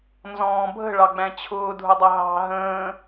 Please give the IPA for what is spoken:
n z ɔ̃ː bʱ ə̤ ɭ ɑ ɡ͡b æ̃ t͡ɕʰ ʊː dʱ ʊ dˤ ʌ ɦ ɑ̤ ɦ ə̃ː

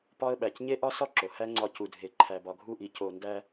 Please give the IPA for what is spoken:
p ɒ˦ ə̯ ɓ æ˨ c ɲ e˦ ʔ ɒ˦ s ɒ˦ ǁ o˨ h æ˦ ŋ͡ǀ ɒ˧ c u˨ dʱ e˨ ǃʰ æ˨ b ɒ˨ ɡʱ u˦˨ ʔ i˨ c o˨ n d æ˧

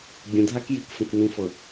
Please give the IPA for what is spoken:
bʲ ə̃ dʱ a k j i k f ə̃ k n ĩ f ɤ

